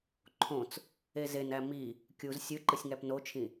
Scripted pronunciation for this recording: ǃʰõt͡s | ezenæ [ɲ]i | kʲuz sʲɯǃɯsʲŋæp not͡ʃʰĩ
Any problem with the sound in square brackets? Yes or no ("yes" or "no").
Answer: yes